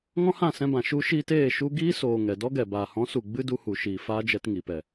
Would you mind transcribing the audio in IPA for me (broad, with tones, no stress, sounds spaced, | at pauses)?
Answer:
ŋ ɔ̃˦ h ã˦˨ s ɛ̃˧ b ã˨ ʃ u˧ ʃ iː˧ t eː˦˨ ʃ u˧ ɡ iː˦ s oː˨ ŋ ɛ˨ d ɔ˦ ɡ ɛ˨ b aː˨ h ɔ̃˨˦ s u˨ ɡ͡b ɨ˦ d u˧ h u˨ ʃ iː˨ f aː˦ d͡ʒ ɛ˧ t ŋ iː˨ p ɛ˨